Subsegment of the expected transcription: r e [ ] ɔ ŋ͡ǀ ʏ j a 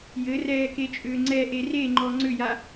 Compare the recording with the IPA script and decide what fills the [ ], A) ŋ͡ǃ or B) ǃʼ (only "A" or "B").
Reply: A